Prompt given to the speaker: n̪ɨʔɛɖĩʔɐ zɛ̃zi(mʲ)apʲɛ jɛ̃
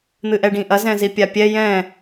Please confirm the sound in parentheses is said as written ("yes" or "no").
no